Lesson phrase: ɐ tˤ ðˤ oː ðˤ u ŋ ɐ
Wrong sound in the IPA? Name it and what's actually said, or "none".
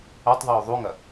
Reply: none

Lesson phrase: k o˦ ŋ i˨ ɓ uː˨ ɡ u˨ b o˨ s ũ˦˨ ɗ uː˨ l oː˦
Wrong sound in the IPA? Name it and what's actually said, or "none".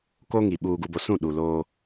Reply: none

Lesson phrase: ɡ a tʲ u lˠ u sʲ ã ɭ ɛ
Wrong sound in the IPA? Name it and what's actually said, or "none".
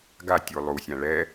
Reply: none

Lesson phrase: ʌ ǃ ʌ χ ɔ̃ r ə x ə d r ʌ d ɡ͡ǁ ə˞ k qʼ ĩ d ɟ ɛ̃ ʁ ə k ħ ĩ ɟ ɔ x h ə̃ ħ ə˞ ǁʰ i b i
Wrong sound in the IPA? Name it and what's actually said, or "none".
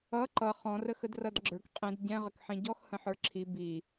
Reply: none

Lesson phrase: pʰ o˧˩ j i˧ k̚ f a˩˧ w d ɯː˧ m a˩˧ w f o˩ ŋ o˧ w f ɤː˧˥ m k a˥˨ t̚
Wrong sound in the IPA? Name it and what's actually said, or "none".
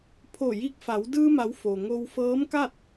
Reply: none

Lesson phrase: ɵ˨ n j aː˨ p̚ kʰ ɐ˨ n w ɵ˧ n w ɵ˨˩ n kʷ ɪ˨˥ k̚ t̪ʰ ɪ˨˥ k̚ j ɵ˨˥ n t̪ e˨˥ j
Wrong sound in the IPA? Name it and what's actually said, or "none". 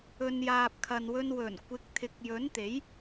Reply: none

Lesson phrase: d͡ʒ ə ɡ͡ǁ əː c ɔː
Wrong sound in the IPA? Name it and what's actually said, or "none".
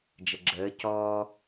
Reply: none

